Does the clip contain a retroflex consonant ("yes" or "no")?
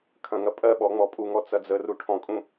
yes